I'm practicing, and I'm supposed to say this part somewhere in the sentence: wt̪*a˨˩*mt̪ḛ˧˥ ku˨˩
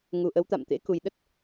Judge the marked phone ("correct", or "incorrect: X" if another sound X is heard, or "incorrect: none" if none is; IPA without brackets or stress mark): incorrect: a̰˧˨